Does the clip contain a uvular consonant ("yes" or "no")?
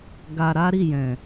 no